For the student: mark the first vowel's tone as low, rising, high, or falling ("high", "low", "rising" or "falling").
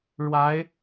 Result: rising